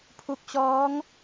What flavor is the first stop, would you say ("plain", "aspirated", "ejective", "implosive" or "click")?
aspirated